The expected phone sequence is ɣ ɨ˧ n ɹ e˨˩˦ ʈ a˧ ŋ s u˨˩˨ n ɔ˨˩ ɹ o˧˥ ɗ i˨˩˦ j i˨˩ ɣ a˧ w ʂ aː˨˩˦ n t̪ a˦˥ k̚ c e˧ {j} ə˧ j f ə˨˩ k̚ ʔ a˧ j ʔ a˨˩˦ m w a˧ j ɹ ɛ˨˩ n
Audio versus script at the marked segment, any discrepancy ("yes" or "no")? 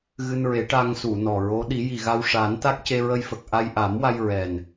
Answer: yes